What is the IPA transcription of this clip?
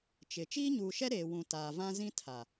t͡ʃ ɪ˨ t͡ʃ iː˦ ɲ uː˨ ʃ ɛ˦ ɾ eː˨ w ũ˨ t aː˨ v ã˦ z ĩ˦ tʰ a˨

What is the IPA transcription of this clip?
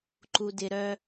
ǃ u˨ d ɪ˨ ɾ œ˦

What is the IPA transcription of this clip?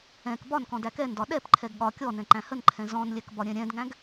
ɛ̃ k b ɒ n k ɔ̃ d æ k ɛ n d ɒ ɗ ɛ p ǃʰ ɛ ɡ ɠ ɒ kʲ ɔ n ɛ̃ ǃ æ̃ h ə n ǃʰ ɛ̃ z ɔ̃ n lʲ ɛ k b ɒ ɾʲ ɛ̃ ɾʲ ɛ̃ d ŋ æ̃ ɡ

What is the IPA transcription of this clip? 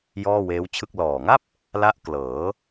j ɔː˥˩ w eː˦˥ w t͡ɕʰ ɯ˥˩ k̚ l ɔː˨˩ ŋ a˥˩ p̚ | l a˦˥ ʔ k l ɤː˩˦

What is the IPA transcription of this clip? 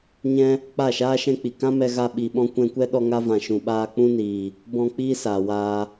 ɲ ɛ̃˦ | k͡p a˦˨ ʃ aː˦ ʃ ɛ̃˦ k͡p i˨ k ã˦ m ɛ˧ ɣ a˧ ɓ i˨ ɓ ɔ̃˧ kʷ ɛ̃˧ kʷ ɛ˦ ɗ ɔ˧ ŋ a˧ v ã˨ ʃ ũ˨ ɓ aː˧ k͡p ũ˦ n iː˨ | b ɔ̃˧ k͡p iː˦ s aː˨ w aː˧

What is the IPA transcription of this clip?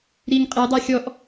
ɾ i ŋ qʼ e dˤ a xʲ ɔ ʔ

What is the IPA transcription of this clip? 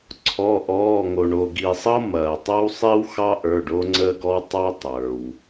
ǀʰ ɔ˩˧˩ ʔ ɔː˩˧˩ ŋ o˩ ɳ o˩ ɡ i˩ sˤ ɤ˦ m ɐː˩ tˤ ɐ˦ w sˤ i˦ w x ɑ˦ ʔ ə˞˩˧˩ ɖ o˦ ŋ͡ǀ əː˦ ɡ ɔ˦ w tˤ ɑ˦ tˤ ə˞˩ w

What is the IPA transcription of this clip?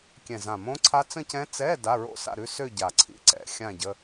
kʲ ɛ̃˨˩ z ã˨˩ m õ˦˥ ǀʰ a˦˥ t͡s ə̃˥˧ c ɛ̃˦˥ t͡s ɛ˧˥˧ d a˧˥˧ ɹ o̰˥˧ s a̰˥˧ ɾ ʉ˧˥˧ s ø˥˧ ɟ a˨˩ ǀʰ ḭ˧˥˧ ǀ ɛ̰˨˦ xʲ ã˥˧ ɟ ə˧˥˧

